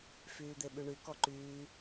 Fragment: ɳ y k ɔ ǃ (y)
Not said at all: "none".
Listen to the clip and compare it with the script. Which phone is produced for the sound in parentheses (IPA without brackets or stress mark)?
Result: yː